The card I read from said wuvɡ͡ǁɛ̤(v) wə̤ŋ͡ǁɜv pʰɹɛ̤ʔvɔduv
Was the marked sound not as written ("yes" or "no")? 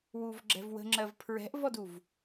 no